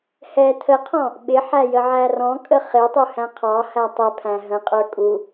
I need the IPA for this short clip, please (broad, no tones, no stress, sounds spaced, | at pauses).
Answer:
h ɛ tʰ ə qʰ ɔ̃ | ɓ ɪ ħ æ j ə ʕ æ r ɔ̃ kʼ ə χ ɪ tˤ u h æ̃ qʰ ɑ h æ tˤ ɛ pʰ æ̃ ɦ ə̃ qʼ ə˞ kʼ u